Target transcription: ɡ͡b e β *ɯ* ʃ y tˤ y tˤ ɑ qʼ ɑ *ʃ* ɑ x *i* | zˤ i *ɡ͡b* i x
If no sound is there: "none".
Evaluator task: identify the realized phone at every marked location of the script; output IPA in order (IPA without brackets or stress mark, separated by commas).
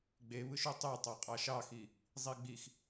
ɯ, ʃ, i, ɡ͡b